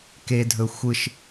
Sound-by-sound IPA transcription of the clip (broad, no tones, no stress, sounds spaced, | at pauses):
k e dʱ ɵ xʷ ɯ ʃ